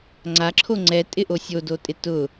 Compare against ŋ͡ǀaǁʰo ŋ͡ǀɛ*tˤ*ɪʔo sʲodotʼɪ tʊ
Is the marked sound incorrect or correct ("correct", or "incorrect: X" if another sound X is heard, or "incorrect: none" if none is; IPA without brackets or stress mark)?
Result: incorrect: tʼ